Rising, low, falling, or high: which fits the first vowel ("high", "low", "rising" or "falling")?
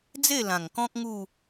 falling